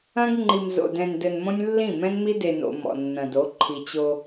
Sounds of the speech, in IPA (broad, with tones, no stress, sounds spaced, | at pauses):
ɐ̃˦ ɡ ŋ͡ǃ i˨ m z o̰˨ d ɛ̃˨ n d ɘ˨ n m õ˦ nʲ lː ĩ˦˨ m ɛ̃˦ n m i˦ d e˨ n o̰˨ m ɔ̰˨ nː ɐ̃˨ d o˨˦ ǃʰ i˨ t͡ɕ o˦